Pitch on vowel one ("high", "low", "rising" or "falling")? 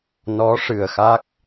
rising